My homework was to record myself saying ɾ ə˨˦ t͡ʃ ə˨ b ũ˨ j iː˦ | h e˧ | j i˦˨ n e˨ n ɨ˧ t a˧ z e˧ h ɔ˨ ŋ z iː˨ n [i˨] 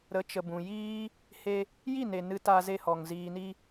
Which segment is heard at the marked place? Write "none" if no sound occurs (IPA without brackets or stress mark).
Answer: i˧